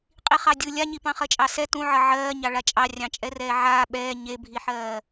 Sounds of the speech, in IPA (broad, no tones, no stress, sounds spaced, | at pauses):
qʼ i χ ɑ dʲ ɯ lʲ a ɲ i p ɑ̃ χ ɜ t͡ʃʼ ɑ s ɛ t ũ ʕ ʌ ʕ ɜː ɲ ɑ ɭ a t͡ʃʼ ɑ rʲ ɑ̃ t͡ʃʼ ɛ r ɛː ʕ aː ɓ ɛː ɲ e bʱ i ħ ɜː